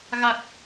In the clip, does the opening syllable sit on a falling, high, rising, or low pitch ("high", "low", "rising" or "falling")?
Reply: low